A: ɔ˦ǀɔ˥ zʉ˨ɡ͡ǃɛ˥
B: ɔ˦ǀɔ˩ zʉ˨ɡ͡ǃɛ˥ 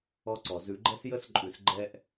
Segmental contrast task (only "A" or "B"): B